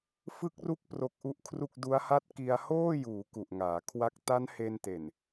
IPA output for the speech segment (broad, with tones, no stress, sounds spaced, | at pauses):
f ɯ˦˥ k̚ r u˦˥ k̚ p r o˦˥ k̚ ʔ u˦˥ ʔ kʰ r u˥˩ k̚ d u˦˥ a̯ h a˥˩ t̚ k i˧ a̯ h oː˥˩ j uː˩˦ k u˨˩ ʔ ŋ aː˩˦ kʰ w a˥˩ k̚ t a˦˥ n h e˧ n t e˨˩ n